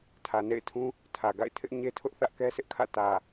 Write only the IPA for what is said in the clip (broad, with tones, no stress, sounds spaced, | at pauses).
tʰ ä˨ n ḛ˦˨ ɪ̯ tʰ ũ˦ | tʰ ä˨ ɡ a̰˦˨ ɪ̯ tʰ ɪ˦ ʔ ɲ e˦ tʰ ʊ˦ ʔ θ ä˦ ʔ k ɛ˦ s ɪ˦ ʔ kʰ ä̰˦˨ t ä˨